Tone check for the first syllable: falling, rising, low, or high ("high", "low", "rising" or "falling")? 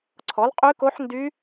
rising